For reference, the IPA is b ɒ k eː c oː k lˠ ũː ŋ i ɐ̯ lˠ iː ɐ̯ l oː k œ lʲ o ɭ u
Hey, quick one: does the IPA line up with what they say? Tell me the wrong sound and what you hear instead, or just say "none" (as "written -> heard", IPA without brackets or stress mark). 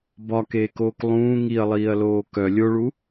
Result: c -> k